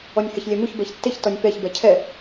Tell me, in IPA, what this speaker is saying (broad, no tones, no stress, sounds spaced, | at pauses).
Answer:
ɔ nʲ h ɛ ç lʲ ɛ m u ç b ɛ ç tː e ç t ɔ nʲ p ɛ ç b ɛ cʰ ɛ